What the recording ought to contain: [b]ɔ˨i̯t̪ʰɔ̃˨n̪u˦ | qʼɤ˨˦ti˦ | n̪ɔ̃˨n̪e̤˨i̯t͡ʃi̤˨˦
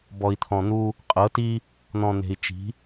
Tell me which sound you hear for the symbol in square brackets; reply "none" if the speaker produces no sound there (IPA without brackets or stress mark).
b